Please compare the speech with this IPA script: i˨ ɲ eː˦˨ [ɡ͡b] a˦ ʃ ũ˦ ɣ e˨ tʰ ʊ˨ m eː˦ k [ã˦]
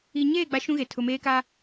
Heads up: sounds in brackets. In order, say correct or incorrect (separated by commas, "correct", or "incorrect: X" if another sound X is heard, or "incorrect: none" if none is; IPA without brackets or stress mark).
correct, incorrect: a˦